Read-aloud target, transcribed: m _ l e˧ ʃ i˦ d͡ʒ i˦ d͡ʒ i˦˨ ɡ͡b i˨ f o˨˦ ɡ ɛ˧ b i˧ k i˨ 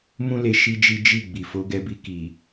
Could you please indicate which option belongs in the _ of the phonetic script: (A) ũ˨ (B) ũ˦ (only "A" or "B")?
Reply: B